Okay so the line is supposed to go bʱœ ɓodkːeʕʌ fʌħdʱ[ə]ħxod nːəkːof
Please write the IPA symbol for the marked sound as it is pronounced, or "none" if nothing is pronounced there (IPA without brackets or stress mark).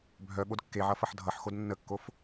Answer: ʌ